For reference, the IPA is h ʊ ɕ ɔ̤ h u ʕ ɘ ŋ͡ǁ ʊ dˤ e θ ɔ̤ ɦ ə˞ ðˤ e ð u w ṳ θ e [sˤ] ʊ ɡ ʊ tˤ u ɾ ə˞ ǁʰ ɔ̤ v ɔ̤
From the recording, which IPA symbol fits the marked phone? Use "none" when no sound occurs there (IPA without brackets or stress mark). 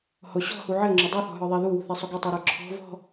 sˤ